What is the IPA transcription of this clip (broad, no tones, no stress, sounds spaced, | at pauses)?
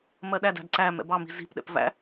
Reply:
m ɜ ɗ æ d æ̤ d ǀ æ m ɛ̰ b ɑ m i̤ z i̤ p ɗ ɛ̰ p v æ̰